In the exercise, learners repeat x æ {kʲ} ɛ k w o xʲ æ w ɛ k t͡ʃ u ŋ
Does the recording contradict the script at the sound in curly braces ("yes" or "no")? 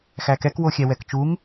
yes